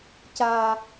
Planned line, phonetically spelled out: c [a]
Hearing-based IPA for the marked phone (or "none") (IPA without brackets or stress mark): a